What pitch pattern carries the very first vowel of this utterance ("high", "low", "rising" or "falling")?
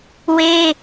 high